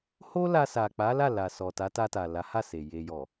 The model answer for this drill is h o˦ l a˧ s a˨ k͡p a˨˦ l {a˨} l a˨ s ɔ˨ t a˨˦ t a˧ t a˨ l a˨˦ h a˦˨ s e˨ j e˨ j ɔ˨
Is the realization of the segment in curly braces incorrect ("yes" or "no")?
yes